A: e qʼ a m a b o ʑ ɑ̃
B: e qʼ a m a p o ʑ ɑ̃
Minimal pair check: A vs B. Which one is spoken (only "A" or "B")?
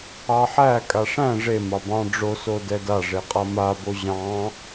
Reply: A